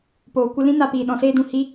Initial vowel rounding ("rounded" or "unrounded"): rounded